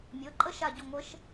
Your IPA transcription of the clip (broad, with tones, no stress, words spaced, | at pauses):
mʲɤ˩˧˩ǃʼə˥ ʃa˧˩ɟʊ˧˩ ŋʷə˧˥ʃ